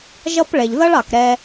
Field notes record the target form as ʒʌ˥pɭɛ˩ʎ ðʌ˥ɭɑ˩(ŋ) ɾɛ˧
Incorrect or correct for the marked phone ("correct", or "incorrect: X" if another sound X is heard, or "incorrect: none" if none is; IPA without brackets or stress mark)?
incorrect: k